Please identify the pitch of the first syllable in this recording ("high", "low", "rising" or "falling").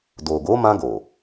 low